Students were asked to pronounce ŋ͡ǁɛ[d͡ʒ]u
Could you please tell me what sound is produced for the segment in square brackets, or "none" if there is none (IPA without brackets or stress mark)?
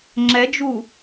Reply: d͡ʒ